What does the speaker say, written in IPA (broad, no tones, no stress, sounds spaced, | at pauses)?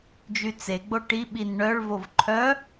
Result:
d͡ʒ y t͡s e ɡ͡b o ʈ i ɓ i n ɳ œ ɭ v o v ǃʰ œ